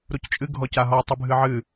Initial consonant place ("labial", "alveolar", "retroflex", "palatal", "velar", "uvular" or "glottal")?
alveolar